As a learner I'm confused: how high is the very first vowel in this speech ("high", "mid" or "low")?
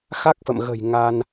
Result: low